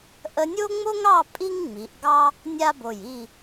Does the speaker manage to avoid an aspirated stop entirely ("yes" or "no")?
yes